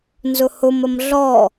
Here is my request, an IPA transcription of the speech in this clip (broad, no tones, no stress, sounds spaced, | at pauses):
n z ʊ h ʊ m ə m ɮ ɔ